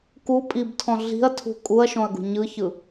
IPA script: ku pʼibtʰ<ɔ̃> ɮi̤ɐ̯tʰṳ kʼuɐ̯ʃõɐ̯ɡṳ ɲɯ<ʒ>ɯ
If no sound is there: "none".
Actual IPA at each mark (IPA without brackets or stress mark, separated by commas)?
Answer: ɔ̃, ç